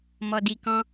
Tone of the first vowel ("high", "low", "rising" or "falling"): low